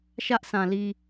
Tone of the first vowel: high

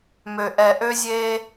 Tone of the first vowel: low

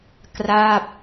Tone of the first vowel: falling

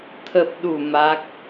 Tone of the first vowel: low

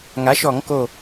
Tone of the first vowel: rising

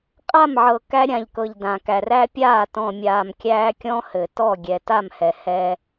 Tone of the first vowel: falling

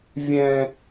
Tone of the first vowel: high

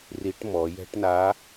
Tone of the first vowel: rising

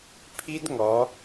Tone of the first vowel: high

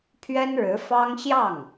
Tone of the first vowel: high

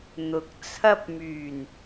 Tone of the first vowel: low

